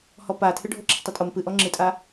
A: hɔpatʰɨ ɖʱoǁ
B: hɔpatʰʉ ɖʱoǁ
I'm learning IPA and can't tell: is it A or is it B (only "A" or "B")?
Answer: A